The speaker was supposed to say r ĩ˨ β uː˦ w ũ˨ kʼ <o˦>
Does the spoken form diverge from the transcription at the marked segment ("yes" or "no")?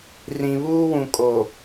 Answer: yes